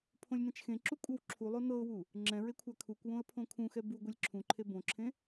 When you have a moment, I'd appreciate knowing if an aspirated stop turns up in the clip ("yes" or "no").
yes